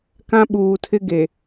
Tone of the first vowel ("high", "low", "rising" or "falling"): high